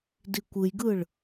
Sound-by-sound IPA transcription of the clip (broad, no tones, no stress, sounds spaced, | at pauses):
d i kʷ ɯ j ɡ ɯ ɭ